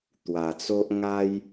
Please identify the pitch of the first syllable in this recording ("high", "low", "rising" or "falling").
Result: low